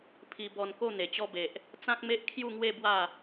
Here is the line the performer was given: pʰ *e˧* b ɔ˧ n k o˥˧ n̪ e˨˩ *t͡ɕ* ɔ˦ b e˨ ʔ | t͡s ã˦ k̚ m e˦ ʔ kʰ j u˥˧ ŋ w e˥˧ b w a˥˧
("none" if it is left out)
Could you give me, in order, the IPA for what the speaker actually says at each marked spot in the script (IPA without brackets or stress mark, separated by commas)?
i˧, t͡ɕ